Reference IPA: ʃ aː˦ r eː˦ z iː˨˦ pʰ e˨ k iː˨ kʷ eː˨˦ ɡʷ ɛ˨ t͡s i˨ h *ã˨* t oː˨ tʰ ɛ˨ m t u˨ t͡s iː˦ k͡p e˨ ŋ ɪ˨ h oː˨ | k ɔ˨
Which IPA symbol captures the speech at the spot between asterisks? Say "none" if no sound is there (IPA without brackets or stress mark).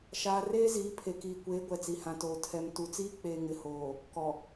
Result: ã˨